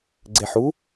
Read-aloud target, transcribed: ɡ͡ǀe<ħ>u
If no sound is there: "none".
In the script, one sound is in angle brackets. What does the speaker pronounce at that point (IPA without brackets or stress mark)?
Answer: ħ